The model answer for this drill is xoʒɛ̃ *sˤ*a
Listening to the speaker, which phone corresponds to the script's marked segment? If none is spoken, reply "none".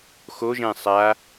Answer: sˤ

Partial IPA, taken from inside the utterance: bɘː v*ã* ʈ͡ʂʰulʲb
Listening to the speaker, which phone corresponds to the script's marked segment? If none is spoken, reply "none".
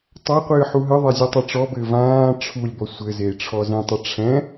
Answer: ãː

